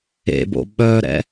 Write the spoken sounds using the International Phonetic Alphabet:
ḛ b o̰ ɓ œ ɾ ɛ̰

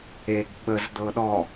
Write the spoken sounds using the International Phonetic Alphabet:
e ɡ ɓ ə z d̪ ɤ ɗ ɔ

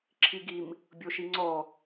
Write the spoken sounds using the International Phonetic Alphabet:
ǁʰ i ɡ i m | bʲ o ʃ i ŋ͡ǀ ɔ

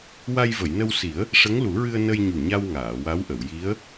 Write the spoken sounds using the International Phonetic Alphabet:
w a˧ j v ə˨˩˨ j n ə˧ w s i˨˩˦ ə̯ | ʂ ə˧˥ ŋ l u˨˩˦ ɹ ɨ˧ ə̯ n ə˧ j ɲ u˨˩ ɲ a˧ w ŋ aː˨˩˨ w a˧˥ w ʔ ə˨˩˨ w j i˧˥ ə̯

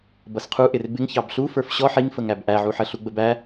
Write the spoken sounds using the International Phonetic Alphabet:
b ʌ s qʰ u ʔ ɪ r b ɪ ŋ ç ɑ b ɬ u f ə˞ f ɕ ɔ ħ i ŋ f ə ŋ æ b ʔ æ ʕ u ħ ə ɬ u ɡ͡b ə b æ

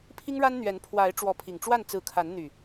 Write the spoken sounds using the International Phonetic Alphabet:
pʰ i˦ ŋ ɻ a˦ n n̪ ɥ ɛ˨˦ n pʰ w a˨˦ ɪ̯ ʈ͡ʂ w ɔ˨˦ pʰ i˨˩ ŋ ʈ͡ʂ w a˥˨ n t͡s ɹ̩˨˦ kʰ a˨˦ n n̪ y˨˩

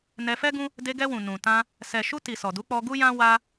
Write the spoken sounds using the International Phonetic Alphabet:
n ɛ˧ f ɛ˦ ɡ ũ˦ | d e˧ ɡ ɛ˧ w ũ˨ n ũ˨ t ã˧ | s ɛ˨ ʃ u˧ t i˨ s ɔ˨ d u˨˦ k͡p ɔ˧ ɡ u˦ j ã˦ w a˦

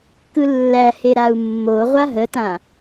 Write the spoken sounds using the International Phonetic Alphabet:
k ɯ lː æ h e ɾ a u̯ mː o ʁʷ a ɦ ə t ã

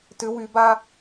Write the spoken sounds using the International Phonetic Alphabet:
t ʏ w y b a

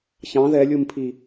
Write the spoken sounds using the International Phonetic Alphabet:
ç ɑ̃ ð ɛ lʲ u m pʰ i

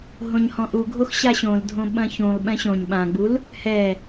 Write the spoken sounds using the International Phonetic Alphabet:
ɦ õ ɲ h ɔ̃ ʔ u ɡʱ o x ɕ a ɕ õ l dʱ õ ɓ ɐ̃ ç ũ lˠ ɓ ɛ̃ ɕ õ ɲ ɓ ã ɡ͡b u l | h ɛ

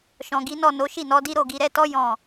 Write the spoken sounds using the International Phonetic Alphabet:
ʃ ɔ̃˨ ɡ i˨˦ n ɔ˦˨ n o˨˦ ʃ i˦˨ n ɔ˨˦ d i˦ ɾ o˦˨ ɡ i˧ ɾ ɛ˧ t ɔ˦ j ɔ̃˦˨

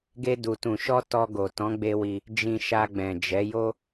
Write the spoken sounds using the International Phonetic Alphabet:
ɡ e˧ d u˨ t ũ˨ ʃ ɔ˧ t ɔ˧ ɡ o˨ t ɔ̃˨˦ ɡ͡b e˧ w i˧ | d͡ʒ ĩ˨ ʃ a˧ ɡ͡b ɛ̃˨ d͡ʒ ɛ˨˦ j o˦

